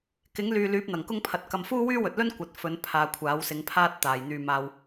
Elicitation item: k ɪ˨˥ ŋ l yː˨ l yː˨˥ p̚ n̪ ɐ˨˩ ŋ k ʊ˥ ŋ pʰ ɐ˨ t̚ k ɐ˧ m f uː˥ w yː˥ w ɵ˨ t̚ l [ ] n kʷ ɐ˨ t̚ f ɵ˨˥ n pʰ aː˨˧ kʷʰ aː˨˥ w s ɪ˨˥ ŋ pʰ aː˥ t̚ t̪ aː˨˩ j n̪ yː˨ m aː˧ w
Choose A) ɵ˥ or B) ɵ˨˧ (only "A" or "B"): A